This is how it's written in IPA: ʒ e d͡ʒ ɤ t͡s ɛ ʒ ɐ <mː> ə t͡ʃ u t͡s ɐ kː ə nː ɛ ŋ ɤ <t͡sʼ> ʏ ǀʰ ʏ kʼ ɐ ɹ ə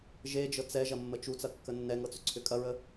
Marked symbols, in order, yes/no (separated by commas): yes, no